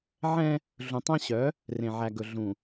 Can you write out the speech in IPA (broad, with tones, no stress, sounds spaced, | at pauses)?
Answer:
ʕ ɛ̃˦ | ɮ ũ˨ tˤ æ̃˦ ɕ œ˨˦ | r ẽ˨ ʕ æ˨ ɡ ɵ˨ ɮ ũ˨